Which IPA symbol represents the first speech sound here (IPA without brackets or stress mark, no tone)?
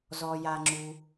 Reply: z